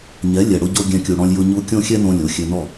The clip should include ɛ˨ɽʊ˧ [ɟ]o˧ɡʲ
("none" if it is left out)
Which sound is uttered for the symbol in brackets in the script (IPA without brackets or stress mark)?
ɟ